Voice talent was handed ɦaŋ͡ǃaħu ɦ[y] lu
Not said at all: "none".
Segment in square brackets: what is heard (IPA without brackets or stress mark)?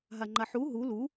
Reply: u